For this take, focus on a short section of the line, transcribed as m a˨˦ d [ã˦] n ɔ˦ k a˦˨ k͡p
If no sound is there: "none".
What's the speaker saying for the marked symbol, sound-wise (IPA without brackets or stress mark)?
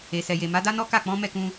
a˦